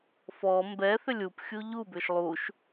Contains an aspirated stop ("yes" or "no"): no